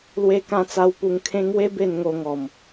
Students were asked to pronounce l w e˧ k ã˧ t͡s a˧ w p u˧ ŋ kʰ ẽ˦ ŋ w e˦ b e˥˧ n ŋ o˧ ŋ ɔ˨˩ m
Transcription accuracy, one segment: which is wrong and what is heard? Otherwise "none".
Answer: none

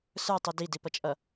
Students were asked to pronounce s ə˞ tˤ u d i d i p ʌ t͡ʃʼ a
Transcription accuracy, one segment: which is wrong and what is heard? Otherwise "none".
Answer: a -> ʌ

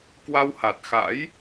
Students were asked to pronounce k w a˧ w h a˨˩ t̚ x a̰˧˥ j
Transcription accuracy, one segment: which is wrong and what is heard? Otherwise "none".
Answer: none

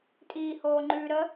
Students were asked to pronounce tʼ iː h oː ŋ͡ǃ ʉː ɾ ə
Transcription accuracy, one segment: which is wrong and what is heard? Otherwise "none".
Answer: none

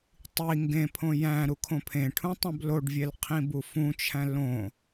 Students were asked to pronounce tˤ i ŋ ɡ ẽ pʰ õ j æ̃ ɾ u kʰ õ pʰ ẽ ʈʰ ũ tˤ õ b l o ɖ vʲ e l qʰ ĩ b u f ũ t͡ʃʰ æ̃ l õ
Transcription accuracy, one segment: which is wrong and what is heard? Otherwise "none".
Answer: none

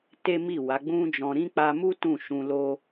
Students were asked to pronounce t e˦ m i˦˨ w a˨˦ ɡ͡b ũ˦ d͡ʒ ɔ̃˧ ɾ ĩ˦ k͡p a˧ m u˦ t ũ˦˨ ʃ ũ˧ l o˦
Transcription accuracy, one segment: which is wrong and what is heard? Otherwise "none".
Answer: none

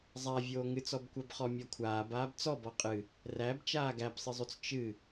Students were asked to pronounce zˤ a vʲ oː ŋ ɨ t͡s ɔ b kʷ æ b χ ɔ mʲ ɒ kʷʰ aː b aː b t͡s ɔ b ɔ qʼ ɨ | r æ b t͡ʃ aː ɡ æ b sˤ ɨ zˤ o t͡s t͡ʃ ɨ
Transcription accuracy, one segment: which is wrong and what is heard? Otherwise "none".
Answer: none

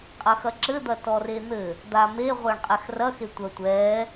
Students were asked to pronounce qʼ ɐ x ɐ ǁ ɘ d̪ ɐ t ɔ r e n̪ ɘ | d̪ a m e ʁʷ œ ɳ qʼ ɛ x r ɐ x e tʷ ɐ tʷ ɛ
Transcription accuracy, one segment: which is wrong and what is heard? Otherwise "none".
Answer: none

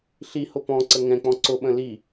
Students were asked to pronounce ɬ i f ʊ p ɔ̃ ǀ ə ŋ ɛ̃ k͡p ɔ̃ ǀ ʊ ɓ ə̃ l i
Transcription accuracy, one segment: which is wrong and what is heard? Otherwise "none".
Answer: f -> h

